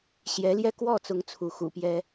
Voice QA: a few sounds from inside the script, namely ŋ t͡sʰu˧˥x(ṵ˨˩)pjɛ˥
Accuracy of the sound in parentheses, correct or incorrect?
correct